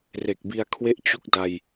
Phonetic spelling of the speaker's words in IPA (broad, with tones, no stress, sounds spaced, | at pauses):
r e˨˩ k̚ b i˧ a̯ kʰ w e˥˩ ʔ t͡ɕ u˥˩ k̚ d a˧ j